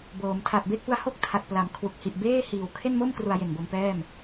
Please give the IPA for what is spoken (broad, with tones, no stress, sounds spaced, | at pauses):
b oː˩˦ m tʰ a˨˩ t̚ b e˥˩ k̚ p u˦˥ a̯ h o˥˩ k̚ tʰ a˨˩ t̚ p l a˩˦ m kʰ w u˨˩ k̚ h i˨˩ ʔ b eː˥˩ h iː˨˩ w kʰ e˥˩ n m o˥˩ m k r u˧ a̯ j e˨˩ n b o˧ m p ɛː˥˩ m